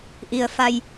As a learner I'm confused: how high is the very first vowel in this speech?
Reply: high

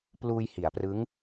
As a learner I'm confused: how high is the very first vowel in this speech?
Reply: high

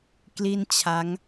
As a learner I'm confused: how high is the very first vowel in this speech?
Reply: high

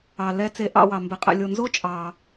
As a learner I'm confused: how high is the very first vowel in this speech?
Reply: low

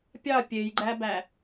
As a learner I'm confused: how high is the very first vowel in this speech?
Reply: low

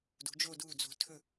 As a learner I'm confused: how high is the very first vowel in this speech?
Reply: high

